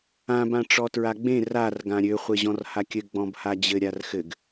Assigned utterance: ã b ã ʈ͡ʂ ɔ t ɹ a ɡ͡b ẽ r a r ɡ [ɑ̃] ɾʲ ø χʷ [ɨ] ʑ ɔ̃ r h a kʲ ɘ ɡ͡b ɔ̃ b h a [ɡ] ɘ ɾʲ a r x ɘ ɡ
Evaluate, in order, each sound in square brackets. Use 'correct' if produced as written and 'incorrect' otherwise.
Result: incorrect: ã, incorrect: e, incorrect: d͡ʑ

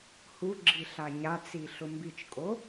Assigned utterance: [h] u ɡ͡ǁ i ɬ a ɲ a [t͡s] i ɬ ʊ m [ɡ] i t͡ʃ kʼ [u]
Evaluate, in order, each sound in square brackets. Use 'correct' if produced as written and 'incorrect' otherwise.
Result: correct, correct, incorrect: b, incorrect: o

